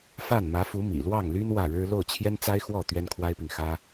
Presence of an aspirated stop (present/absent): present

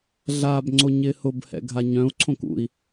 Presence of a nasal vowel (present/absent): present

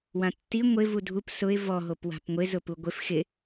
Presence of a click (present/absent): absent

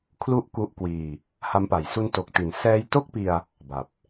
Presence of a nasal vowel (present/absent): absent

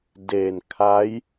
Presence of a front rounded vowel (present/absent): absent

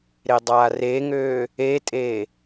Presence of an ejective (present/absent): present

